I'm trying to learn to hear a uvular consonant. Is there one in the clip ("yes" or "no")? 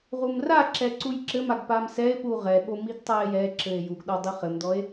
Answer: yes